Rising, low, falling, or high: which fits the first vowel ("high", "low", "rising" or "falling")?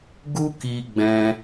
high